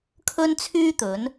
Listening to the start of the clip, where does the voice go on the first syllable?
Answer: high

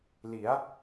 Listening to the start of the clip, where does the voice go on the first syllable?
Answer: rising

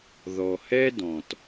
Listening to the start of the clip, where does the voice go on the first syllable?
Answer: low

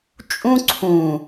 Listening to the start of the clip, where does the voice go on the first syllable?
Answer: high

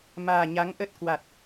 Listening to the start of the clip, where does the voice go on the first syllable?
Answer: low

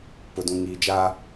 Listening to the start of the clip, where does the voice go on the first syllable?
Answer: low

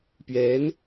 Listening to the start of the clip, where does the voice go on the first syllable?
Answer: rising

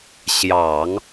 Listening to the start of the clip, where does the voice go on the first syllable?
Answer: low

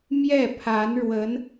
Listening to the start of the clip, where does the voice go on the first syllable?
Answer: falling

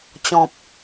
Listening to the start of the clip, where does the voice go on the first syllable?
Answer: low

